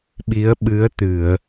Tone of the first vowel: rising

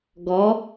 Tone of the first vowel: rising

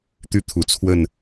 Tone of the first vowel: falling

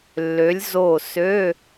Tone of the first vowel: rising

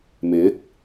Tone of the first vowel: rising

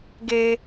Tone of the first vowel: high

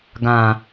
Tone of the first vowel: low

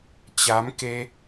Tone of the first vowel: rising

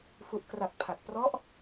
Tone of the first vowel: low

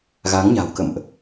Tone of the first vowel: rising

